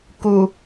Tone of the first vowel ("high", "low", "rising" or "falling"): low